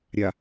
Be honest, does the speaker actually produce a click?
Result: no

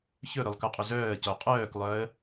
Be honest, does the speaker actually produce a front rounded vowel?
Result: yes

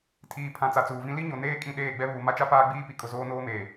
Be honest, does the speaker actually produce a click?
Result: no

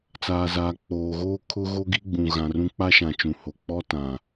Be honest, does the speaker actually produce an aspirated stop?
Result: yes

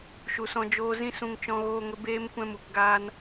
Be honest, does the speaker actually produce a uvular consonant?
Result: no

